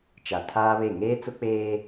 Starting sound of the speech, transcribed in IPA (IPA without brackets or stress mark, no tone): t͡ʃ